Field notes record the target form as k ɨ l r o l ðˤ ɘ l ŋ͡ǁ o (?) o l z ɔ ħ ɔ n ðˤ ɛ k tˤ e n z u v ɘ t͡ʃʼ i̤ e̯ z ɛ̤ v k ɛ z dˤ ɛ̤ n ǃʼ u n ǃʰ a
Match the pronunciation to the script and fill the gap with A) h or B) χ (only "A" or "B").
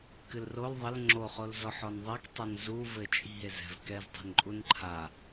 B